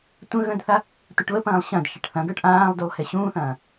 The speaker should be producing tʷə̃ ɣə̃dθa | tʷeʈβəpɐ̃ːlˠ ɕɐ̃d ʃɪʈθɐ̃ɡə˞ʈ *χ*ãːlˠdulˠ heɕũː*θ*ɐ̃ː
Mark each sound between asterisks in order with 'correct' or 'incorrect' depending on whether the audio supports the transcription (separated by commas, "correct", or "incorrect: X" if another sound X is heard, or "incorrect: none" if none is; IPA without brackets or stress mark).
incorrect: ʔ, correct